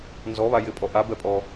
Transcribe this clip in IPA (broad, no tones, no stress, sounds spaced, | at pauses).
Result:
n z ɔ β a j ɪ pʼ ɔ ʔ a b ɛ pʼ ɔ